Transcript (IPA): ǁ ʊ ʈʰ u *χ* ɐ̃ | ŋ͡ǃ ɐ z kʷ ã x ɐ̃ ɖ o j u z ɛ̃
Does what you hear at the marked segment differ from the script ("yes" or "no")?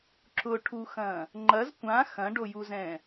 yes